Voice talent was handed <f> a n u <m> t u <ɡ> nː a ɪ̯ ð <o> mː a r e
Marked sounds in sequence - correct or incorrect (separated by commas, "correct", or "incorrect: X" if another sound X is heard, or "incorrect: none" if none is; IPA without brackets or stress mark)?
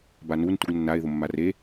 incorrect: b, incorrect: n, correct, correct